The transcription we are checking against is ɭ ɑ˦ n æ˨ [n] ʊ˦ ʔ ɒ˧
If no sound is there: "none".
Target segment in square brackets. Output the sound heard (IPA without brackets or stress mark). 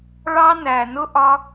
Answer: n